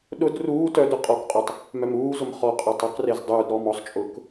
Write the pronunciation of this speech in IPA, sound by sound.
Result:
ɗʊd ruː tœdʊ qʼɔkqʼutˤ | mœmuːzʊm χɔqʼœtˤ uqrez dˤuːd ɾɔːmɔsˤt͡ʃʼʊːk

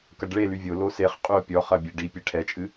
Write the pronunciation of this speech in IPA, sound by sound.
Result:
kɐɖɭe lyvʲo loseχ qʼyo̯pʲɔ χɐbʲeɖi pʲeʈʰɛt͡ʃʼɨ

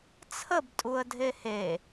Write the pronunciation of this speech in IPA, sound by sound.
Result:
t͡sʰəb tʼuə̯dʱehe

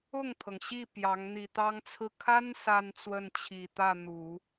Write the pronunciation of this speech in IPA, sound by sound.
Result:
ʊ˥˩ŋt̪ʰɤ˩ŋ ɕi˥˩ pjɑ˧˥ŋ n̪i˨˩t̪ɑ˥ŋt͡sʰɹ̩˥˩ kʰa˥n sa˥nt͡swə˥˩nt͡ɕʰi˨˩ t̪ä˥˩n̪u˨˩˦

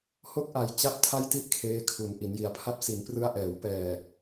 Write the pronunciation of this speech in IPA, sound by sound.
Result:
ho˥˩k̚ʔa˧j t͡ɕa˦˥p̚ tʰa˥˩jti˥˩ʔ kʰeː˦˥kʰu˨˩n ʔi˩˦nji˩˦a̯pʰa˦˥p̚ si˩˦nprɯ˦˥a̯ʔɛː˩˦w pɛː˨˩

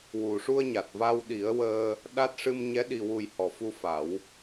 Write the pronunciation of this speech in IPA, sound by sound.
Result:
wu˨˩ʂu˧ə̯ɲa˨˩t̚ va˧wɗi˨˩˦ə̯wəː˧ | ɗa˦˥t̚ ʂɨ˧mɲɛ˧˥ ɗi˨˩wu˨˩j hɔ˨˩fu˧fa˨˩˦w

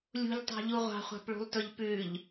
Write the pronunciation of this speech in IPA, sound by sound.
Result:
lʲṳʎtˤɑ̤ʎu ʁʷɑ̤χʷɑ̤pɭṳlˠtɵʎ pʉʎ

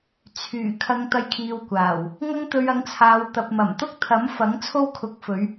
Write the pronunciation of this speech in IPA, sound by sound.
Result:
t͡sʰyː˨˩ kʰɐ˨ŋ t̪ɐ˧j kʰiː˧wkʷaː˨˩w | ŋɐ˥ŋt̪ɵ˧ɥɐ˨˥ŋt͡sʰaː˨˧w t̪ɐ˨p̚mɐ˨˩mt̪ʊ˥k̚ t̪ʰɐ˨˥mfɐ˨˥ŋ t͡sʰo˥wkʰʊ˨˥k̚fɵ˨˧ɥ

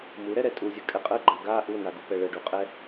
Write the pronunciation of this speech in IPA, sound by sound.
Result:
muɾɛɾɛ tʼuzʲəkʼɛ qʼəɡ͡ǃa ɡa ʔunaɡupɛ ɭəɖuqʼɛ

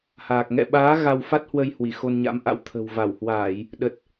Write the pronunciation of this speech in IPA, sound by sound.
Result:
haː˨˩k̚ ŋɛ̰˧˨ɓaː˨˦ ɣa˧wfa˦˥t̚hwə˧j hwi˧˩xo˧nɲa̰˧˥mʔa̰˧˥w t̪ʰə̤˨˩w va˧˩whwaː˧˩˨j | ɗə˨˩t̚

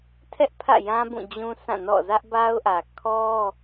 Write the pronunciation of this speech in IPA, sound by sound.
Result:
tʰɛ˦ʔpʰä̰˦˨jã˦ bũ˦˨d͡ʑũ˦ sʰã˦˨nɔ̰˦˨ zä˦ʔba˦ʊ̯ʔä˨ kʰɔ˦

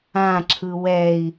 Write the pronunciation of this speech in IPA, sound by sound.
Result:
ãǁʰɯ wɛi̯

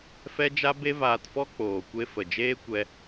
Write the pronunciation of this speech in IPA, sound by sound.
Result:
fɛ˦d͡ʒa˦ be˦vaː˧tfɔ˦ k͡poː˨kʷe˦ fə˨d͡ʒeː˦ kʷɛ˦

